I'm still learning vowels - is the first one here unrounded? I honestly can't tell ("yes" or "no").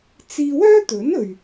yes